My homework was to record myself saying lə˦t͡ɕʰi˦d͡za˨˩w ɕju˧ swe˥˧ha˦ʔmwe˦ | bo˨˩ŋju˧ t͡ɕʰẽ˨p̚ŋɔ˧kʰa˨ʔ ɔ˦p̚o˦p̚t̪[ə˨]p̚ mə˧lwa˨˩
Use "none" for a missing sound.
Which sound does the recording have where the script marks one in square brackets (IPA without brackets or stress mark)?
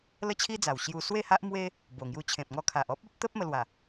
ə˦